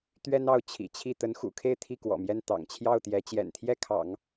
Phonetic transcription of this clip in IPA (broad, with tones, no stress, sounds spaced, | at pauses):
t̪ ɥ ɛ˥ n ɑ˥˩ ʊ̯ t͡ɕʰ ḭ˨˩ t͡ɕʰ i˥˩ t̪ ə˧˥ n x ṵ˨˩ kʰ e˥˧ ɪ̯ t̪ʰ i˥˩ k w ɔ̰˨˩ m j ɛ˥˩ n t̪ ɑ̰˨˩ ŋ t͡ɕʰ j ɑ˥˩ ʊ̯ t̪ j ɛ˧˥ t͡ɕ j ɛ̰˨˩ n t̪ʰ j ɛ˥˩ kʰ ɑ̰˨˩˦ ŋ